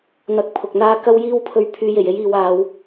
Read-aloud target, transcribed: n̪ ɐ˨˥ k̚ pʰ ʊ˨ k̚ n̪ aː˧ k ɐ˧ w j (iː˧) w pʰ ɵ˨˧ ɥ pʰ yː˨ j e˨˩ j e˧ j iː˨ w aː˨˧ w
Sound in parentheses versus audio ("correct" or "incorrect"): correct